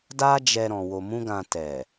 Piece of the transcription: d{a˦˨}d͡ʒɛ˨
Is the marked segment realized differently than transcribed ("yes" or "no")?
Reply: yes